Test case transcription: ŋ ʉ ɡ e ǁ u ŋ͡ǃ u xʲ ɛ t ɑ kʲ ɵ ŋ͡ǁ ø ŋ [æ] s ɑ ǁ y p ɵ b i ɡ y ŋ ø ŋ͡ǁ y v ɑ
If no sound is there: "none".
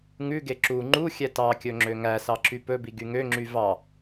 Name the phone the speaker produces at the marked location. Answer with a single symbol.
æ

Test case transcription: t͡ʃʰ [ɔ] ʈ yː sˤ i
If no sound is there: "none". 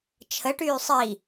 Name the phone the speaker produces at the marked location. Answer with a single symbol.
ə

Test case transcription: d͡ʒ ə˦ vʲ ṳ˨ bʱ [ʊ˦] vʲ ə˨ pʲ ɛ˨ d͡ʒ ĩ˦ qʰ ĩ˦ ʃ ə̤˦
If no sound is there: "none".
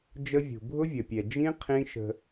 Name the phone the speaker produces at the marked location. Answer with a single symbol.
ʊ˦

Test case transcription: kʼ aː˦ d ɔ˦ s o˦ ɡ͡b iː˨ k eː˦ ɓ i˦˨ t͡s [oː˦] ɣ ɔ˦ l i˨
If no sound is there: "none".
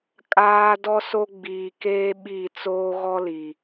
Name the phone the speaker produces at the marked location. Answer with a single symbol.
oː˦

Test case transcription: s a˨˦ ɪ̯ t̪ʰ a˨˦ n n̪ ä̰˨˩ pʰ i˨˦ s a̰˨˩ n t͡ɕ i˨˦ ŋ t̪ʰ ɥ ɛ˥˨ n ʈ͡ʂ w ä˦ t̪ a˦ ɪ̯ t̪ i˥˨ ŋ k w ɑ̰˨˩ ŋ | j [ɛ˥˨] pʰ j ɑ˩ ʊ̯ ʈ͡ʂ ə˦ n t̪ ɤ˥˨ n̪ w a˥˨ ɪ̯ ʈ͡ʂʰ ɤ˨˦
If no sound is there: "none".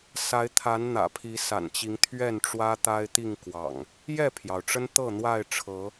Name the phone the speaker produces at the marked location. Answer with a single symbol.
ɛ˥˨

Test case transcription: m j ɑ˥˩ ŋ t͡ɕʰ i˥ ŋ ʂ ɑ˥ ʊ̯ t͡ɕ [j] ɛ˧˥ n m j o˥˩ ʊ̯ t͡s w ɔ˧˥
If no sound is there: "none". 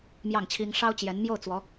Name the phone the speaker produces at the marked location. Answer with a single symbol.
j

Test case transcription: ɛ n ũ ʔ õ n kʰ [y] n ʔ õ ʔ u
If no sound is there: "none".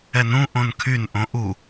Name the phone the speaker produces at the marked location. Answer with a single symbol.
y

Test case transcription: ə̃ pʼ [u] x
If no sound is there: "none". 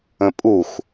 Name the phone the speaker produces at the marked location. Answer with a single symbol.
u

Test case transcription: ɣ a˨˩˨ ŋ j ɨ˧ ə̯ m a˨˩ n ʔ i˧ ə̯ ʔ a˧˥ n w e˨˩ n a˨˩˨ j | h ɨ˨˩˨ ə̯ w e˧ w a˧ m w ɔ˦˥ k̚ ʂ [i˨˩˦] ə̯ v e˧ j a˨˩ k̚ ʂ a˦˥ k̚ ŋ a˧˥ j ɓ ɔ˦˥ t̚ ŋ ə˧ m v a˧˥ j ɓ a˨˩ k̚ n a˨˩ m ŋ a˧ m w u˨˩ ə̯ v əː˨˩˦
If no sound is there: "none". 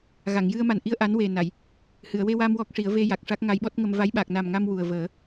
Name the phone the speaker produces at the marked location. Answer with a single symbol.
i˨˩˦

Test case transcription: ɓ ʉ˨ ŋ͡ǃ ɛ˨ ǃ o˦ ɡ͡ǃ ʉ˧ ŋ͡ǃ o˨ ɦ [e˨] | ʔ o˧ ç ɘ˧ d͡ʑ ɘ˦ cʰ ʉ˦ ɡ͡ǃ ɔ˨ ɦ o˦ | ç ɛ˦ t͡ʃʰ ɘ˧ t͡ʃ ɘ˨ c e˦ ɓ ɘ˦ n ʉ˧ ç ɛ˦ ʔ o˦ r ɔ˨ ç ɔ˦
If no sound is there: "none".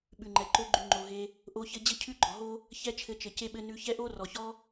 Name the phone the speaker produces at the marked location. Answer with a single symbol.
e˧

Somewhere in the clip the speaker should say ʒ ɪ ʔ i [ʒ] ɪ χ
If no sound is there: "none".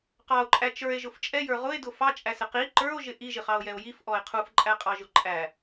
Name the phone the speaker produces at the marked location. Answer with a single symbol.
ʒ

